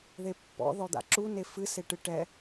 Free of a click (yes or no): no